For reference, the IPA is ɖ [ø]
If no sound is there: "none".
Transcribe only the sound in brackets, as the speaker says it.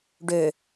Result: ø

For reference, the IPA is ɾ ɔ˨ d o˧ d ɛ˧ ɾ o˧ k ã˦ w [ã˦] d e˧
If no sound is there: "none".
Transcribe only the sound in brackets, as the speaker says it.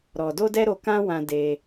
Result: ã˧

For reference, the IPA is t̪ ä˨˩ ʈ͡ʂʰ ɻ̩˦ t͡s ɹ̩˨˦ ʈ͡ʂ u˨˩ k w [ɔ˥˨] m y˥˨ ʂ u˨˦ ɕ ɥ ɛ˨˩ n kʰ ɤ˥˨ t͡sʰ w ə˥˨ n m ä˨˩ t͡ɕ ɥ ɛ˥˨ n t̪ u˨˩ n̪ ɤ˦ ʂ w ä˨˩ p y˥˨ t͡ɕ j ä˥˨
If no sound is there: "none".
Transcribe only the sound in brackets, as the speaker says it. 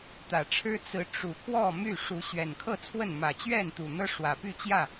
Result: ɔ˥˨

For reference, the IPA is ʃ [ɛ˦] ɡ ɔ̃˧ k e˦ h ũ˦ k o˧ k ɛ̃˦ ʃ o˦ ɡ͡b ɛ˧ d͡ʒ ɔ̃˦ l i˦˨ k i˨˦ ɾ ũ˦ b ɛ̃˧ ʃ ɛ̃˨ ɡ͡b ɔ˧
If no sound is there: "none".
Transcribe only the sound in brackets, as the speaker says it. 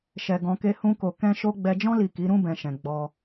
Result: ɛ˧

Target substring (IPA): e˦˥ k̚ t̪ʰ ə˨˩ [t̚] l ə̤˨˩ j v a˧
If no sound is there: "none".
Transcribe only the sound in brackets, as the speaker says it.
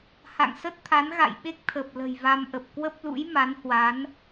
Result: p̚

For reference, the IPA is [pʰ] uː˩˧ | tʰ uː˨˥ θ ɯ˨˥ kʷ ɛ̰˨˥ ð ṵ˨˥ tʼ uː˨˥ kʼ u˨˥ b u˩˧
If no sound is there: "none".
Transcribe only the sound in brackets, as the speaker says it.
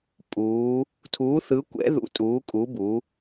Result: pʼ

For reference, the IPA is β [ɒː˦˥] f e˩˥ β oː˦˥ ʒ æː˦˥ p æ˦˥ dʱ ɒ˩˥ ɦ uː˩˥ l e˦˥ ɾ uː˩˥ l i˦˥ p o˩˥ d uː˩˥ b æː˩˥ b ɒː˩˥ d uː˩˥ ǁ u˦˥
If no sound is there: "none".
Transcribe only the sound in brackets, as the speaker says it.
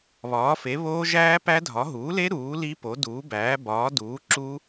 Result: ɒː˩˥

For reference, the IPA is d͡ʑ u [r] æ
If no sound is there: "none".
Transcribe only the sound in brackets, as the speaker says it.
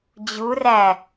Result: r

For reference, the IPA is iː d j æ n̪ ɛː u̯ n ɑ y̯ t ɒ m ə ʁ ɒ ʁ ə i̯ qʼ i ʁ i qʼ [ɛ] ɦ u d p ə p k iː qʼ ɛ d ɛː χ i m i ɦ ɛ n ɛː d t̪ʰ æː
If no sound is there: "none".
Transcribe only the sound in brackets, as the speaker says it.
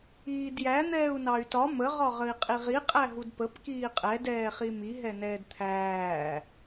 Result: æ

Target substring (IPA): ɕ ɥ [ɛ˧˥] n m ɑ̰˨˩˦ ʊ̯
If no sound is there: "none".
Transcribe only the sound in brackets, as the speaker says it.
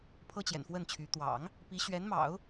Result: ɛ˧˥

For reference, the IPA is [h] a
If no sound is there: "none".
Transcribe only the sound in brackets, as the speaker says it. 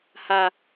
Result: h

